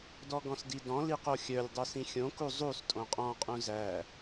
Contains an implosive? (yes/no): no